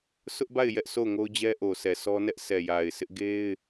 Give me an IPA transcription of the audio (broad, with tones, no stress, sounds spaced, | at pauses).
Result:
sʰ ʊ˦ ʔ b a˦˨ ɪ̯ j ɛ˦ ʔ s o˦˨ ʊ̯ ŋ o˦ ʊ̯ d͡ʑ ɛ˦ ʔ o˨ sʰ ɛ˨ sʰ ɔ˦ n ɛ˦ ʔ s ɛ˨ j a˨ ɪ̯ s ɪ˦ ʔ ɡ e˦ ɪ̯